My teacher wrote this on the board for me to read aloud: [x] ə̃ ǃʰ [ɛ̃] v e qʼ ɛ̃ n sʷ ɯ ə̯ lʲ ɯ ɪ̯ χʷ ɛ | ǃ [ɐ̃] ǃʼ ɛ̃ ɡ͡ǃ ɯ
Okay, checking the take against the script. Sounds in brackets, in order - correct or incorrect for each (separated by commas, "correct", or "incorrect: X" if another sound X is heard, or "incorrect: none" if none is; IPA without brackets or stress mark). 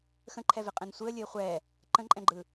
correct, incorrect: ɛ, incorrect: ə̃